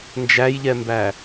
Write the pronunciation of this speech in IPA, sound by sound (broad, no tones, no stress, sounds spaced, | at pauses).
n d͡ʒ æ j ʎ ɛ m b æ